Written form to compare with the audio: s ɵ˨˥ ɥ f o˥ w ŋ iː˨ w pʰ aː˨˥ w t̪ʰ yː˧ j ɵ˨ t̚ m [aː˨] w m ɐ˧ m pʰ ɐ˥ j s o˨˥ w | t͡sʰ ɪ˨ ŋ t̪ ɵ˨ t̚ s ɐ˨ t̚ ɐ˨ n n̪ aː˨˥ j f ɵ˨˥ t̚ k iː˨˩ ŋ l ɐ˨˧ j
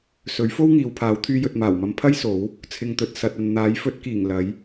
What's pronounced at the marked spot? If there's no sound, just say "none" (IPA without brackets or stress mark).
aː˨˩